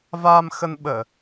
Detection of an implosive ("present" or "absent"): present